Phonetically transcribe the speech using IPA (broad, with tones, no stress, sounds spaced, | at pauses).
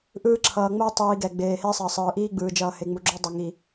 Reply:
ʔ ɯː˦ ǁʰ ʌː˨ ŋ͡m o˦ tˤ iː˨ ɡ ɛ˨ ɡ͡b eː˨ h e˦ sˤ ʌ˨ sˤ ɯː˨ ʔ iː˦ ɡ͡b ɯː˨ d͡ʒ ʌː˨ h e˨ ŋ͡m u˨ ɡ͡ǁ o˦ dˤ ʌ˨ ŋ i˨